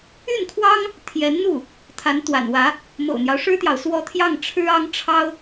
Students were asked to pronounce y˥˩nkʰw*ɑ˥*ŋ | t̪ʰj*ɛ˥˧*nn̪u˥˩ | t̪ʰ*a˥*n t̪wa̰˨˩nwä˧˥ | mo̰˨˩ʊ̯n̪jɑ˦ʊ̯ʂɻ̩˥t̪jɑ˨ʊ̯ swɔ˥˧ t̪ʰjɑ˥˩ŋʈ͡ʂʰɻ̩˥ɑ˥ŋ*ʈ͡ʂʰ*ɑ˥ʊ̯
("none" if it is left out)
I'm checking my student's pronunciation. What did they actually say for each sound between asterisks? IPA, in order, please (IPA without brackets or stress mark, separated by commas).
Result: ɑ˥, ɛ˧˥, a˧˥, ʈ͡ʂʰ